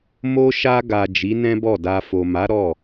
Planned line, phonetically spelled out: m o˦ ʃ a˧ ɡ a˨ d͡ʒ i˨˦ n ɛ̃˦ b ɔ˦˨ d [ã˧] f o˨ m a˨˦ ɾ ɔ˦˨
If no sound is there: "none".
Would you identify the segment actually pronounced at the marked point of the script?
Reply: a˧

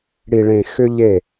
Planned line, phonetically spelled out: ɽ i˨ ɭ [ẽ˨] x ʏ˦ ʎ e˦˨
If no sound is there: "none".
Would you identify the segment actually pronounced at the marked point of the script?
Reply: ẽ˨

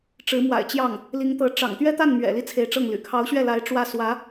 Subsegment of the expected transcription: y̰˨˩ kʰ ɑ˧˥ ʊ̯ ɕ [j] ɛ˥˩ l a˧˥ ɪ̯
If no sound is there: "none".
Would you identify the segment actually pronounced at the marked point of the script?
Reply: ɥ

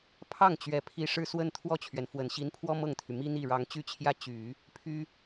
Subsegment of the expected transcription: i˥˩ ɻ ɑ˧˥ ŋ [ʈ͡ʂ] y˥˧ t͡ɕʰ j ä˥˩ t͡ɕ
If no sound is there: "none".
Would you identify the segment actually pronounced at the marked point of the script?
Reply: t͡ɕ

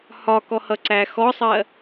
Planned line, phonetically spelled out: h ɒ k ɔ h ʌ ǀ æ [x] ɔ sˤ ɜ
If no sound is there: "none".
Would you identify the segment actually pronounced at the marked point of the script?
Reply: x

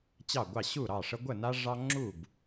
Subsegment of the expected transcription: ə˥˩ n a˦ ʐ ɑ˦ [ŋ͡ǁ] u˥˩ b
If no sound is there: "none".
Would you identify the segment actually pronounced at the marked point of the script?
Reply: ŋ͡ǁ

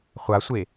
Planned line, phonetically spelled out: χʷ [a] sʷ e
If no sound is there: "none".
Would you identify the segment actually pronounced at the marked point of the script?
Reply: a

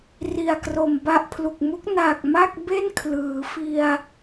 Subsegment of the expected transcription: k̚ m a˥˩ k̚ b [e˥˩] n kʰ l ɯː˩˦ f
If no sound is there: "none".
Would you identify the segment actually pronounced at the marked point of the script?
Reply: e˥˩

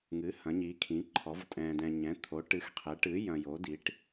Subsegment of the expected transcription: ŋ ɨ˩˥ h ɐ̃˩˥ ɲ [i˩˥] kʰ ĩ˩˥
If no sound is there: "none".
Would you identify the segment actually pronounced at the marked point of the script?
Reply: i˩˥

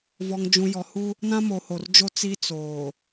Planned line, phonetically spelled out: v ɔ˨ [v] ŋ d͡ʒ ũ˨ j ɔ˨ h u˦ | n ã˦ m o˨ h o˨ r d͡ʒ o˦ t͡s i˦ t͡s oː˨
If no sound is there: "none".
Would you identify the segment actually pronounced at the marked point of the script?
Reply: none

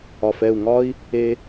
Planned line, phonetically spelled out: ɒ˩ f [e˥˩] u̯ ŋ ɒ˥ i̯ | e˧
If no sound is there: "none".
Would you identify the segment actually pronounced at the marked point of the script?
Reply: ɛ˥˩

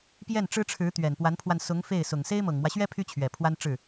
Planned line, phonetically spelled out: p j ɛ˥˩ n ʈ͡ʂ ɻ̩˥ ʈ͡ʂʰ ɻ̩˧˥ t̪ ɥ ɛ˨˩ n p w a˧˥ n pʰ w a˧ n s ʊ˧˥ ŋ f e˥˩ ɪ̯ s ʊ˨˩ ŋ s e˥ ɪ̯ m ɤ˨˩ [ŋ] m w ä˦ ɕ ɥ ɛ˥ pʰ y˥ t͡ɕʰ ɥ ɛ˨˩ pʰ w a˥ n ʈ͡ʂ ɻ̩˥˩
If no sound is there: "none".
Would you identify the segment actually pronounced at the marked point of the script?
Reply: ŋ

